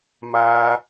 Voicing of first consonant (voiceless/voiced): voiced